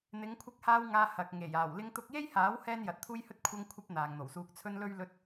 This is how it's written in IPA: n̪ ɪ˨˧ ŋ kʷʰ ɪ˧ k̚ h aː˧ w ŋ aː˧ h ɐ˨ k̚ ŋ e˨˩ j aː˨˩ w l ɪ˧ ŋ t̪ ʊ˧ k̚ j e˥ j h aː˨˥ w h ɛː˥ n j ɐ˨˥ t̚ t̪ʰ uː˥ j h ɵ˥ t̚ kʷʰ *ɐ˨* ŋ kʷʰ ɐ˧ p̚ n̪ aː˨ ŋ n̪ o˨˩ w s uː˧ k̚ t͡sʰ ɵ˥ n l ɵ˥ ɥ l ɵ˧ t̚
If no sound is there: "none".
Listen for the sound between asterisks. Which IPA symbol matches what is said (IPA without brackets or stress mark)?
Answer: ɐ˧